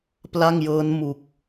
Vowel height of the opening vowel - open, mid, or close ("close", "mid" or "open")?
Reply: open